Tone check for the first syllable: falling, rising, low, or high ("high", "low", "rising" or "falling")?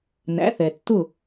rising